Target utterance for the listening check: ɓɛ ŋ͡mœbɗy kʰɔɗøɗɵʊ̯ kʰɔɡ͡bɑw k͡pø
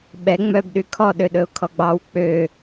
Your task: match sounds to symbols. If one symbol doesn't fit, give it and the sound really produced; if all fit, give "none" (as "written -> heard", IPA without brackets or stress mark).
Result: none